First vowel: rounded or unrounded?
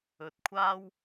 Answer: rounded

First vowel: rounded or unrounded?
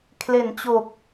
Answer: unrounded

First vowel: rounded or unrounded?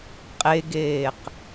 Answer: unrounded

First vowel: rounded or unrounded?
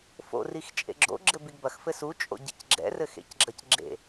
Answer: rounded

